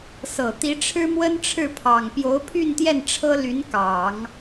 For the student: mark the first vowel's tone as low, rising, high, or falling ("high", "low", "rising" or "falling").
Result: low